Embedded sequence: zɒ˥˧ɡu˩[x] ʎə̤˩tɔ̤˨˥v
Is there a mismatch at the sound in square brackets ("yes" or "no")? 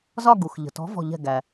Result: no